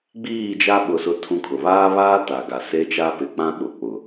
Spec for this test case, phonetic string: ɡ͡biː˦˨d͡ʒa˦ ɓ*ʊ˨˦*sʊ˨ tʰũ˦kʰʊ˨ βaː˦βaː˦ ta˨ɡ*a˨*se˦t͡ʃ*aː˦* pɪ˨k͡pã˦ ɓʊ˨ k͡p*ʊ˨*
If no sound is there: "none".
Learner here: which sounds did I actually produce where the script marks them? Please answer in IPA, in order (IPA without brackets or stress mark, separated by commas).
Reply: ʊ˨, a˨, a˦, ʊ˨